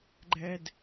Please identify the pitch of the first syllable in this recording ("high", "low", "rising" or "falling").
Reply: high